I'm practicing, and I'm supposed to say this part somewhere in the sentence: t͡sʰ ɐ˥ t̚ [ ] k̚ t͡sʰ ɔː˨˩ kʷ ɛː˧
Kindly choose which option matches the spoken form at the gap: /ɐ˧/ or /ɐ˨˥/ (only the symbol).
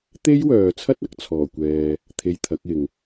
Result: ɐ˨˥